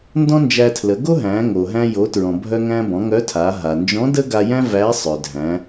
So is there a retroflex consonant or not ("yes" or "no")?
no